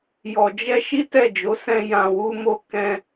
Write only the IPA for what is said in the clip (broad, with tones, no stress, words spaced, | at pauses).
jɔ˨d͡ʒɛ˧ ʃi˦tɛ˦˨d͡ʒo˨˦ sɛ̃˧ jã˧wu˦mo˦ kɛ̃˧